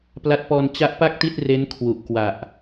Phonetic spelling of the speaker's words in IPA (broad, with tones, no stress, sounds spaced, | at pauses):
p l a˦˥ t̚ p ɔː˧ n t͡ɕ a˦˥ ʔ p a˥˩ k̚ t i˥˩ t̚ r e˦˥ n kʰ w u˨˩ ʔ k w a˨˩ ʔ